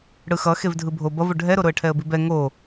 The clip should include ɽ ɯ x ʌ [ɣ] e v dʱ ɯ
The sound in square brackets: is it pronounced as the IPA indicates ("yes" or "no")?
no